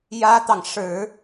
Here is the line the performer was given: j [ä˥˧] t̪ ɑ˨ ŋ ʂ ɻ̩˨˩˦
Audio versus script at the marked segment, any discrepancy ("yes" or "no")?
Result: yes